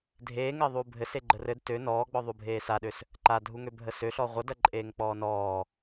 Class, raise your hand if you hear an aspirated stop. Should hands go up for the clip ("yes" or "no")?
no